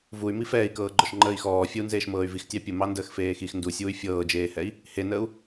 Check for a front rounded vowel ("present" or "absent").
present